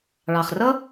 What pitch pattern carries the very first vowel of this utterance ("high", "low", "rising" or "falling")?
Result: low